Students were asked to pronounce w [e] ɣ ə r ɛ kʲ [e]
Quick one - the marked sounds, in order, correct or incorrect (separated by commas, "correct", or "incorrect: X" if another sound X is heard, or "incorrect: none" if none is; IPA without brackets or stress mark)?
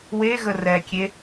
correct, correct